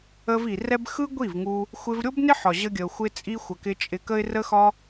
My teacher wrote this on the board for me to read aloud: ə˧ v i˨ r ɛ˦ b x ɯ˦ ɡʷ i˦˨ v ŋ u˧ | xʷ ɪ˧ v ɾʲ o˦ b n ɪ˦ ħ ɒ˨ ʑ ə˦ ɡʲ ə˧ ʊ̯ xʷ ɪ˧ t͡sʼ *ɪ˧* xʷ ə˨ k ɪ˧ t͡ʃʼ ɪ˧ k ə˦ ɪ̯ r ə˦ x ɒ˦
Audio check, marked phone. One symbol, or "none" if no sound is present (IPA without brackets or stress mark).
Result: i˧